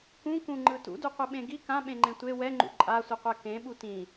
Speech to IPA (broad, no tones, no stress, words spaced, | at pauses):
kũkũŋ͡ǃɯ tṵduqʷɯɓẽ ɡi kãɓẽŋ͡ǃẽ tʷe wɛŋ͡ǃṵ ǃʼasʷiqʷɛ kẽɓu tĩ